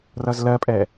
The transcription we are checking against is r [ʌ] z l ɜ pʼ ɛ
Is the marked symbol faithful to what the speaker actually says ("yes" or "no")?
yes